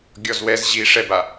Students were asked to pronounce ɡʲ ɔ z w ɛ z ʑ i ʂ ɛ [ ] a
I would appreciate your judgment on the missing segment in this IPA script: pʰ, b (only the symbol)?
b